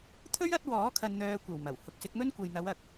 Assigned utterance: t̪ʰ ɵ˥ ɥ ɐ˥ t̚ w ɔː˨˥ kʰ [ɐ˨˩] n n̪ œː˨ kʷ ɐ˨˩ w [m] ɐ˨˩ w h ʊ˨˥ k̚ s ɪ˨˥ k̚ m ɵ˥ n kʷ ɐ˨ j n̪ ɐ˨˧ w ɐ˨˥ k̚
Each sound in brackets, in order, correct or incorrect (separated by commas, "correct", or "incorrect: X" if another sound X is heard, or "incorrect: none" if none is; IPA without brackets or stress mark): incorrect: ɐ˨, correct